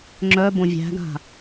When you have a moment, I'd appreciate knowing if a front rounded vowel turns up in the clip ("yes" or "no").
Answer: yes